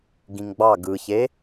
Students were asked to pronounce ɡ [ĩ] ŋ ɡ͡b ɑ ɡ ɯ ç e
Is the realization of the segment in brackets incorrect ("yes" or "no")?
no